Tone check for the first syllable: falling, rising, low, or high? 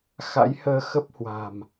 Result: rising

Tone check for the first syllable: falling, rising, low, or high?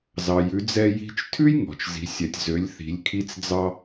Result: low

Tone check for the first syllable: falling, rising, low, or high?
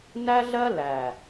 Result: high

